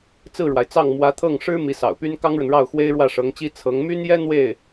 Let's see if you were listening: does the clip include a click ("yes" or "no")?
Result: no